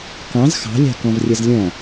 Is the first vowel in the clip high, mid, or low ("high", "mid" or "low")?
low